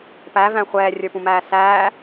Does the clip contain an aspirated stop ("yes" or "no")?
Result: no